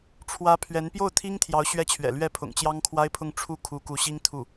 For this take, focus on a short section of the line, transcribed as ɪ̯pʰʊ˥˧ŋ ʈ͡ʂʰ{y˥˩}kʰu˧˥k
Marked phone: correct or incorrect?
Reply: incorrect